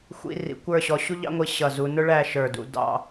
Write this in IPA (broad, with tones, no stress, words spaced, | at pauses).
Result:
xʷḭ˧ rḭ˩˧ kʷə˞˥˧ɕɔ˧ ɕu˥ʎɑ̰˥ŋʷi˧ ɕʌ˧˩zu˧ nʊ˥ɭæ˥˧ ʃə˞˧˩dṵ˧ dɑ̰˥˧